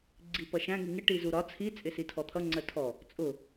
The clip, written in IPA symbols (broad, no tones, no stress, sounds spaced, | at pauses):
ɡ͡ǀ i p ʌ ʃ æ̃ ŋ i ŋ ɪ ʈ i z u ɾ ɒ t͡sʰ i t͡sʼ ɪ s i tʰ ɔ t̪ʰ ʌ ŋ͡ǀ ɜ tʰ ɔ | t͡sʼ ʊ